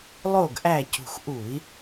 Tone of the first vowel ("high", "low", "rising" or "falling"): falling